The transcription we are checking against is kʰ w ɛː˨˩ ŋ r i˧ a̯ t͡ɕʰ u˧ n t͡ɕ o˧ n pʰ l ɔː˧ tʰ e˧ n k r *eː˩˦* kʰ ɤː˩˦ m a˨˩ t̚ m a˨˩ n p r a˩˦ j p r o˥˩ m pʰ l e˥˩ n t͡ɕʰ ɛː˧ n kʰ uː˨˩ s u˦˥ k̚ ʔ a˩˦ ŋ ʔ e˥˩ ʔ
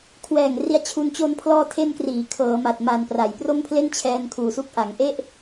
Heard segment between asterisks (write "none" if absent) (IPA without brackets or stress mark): iː˩˦